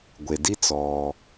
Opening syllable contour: low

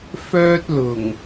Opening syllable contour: high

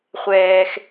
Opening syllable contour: low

